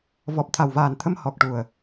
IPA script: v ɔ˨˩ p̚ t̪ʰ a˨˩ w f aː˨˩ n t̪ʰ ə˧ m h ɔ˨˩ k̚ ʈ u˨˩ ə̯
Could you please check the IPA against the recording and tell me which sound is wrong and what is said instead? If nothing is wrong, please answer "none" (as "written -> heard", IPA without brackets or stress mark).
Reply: f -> v